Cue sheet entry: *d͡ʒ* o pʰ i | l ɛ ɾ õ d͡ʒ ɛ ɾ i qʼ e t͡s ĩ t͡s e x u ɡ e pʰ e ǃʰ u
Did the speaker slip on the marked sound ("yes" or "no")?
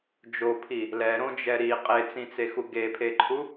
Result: no